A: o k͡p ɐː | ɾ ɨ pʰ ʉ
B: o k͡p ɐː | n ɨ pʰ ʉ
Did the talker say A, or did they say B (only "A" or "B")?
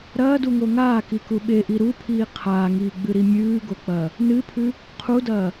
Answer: B